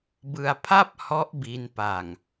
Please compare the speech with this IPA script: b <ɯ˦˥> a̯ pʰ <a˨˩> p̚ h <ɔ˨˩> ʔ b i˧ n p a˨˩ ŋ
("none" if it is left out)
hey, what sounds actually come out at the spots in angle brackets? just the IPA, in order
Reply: ɯ˧, a˥˩, ɔ˦˥

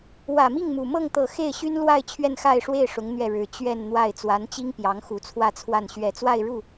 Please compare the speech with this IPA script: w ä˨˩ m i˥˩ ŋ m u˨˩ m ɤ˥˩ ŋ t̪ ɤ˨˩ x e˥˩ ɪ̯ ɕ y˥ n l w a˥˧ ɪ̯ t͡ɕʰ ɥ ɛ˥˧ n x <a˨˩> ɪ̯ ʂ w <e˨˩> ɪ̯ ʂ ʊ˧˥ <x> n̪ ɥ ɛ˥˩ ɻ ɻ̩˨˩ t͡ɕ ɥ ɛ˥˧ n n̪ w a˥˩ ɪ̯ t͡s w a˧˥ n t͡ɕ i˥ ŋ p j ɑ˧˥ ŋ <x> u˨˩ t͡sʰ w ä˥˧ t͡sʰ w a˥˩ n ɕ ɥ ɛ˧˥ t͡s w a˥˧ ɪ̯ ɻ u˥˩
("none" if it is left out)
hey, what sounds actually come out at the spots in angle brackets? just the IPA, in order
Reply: a˥˧, e˥˩, ŋ, x

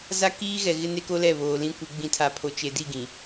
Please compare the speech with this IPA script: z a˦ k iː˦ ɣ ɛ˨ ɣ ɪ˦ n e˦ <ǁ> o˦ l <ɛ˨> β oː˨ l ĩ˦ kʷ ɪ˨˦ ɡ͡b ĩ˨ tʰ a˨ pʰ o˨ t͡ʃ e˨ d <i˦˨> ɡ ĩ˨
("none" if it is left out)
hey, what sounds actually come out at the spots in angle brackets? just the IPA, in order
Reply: k, ɛ˦˨, i˦˨

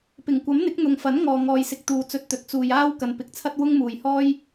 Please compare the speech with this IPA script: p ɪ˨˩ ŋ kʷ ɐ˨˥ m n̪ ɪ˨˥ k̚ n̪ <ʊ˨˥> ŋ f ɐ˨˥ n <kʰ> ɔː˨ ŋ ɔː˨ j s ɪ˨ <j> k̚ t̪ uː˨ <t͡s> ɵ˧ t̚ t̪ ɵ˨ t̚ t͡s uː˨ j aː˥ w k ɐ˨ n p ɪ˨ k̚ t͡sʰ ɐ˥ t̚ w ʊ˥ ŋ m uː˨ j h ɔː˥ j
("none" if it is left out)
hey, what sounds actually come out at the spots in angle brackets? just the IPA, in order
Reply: ʊ˨, ŋ, none, t͡s

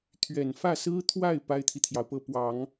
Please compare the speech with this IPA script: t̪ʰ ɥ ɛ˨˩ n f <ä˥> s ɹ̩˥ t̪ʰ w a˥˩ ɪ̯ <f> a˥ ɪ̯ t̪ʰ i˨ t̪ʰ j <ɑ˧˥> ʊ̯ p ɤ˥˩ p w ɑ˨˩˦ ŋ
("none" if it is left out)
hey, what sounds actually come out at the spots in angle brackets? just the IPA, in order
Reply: ä˥˩, p, ɑ˩

